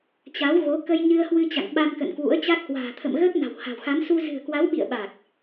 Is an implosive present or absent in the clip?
present